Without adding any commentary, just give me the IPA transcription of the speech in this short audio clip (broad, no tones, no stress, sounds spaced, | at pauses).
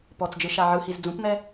p ɔ t͡s d͡ʒ ɯ ʃ a ʕ ɯ h i z d͡z ũ p n̪ ɛ